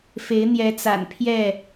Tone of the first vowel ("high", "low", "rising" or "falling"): rising